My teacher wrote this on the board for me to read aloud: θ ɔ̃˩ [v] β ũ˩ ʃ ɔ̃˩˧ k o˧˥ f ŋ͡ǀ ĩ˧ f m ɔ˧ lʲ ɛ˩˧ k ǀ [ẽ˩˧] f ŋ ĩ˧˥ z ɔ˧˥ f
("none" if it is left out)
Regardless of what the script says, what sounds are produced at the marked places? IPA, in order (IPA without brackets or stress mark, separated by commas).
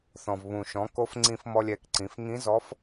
v, ĩ˩˧